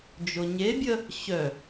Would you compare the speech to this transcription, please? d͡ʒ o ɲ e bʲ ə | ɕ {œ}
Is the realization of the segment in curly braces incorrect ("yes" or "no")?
no